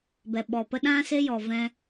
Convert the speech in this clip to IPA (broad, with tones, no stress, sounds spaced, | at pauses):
b ɛ˨ ɓ ɔ˨ p ə˦ ɗ ã˦ s e˦ j ɔ˨ v ɛ̃˧